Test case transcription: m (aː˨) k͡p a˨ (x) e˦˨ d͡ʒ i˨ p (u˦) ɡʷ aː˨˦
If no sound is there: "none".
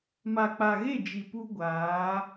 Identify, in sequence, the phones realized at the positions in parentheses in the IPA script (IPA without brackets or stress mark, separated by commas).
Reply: a˨, ɣ, u˦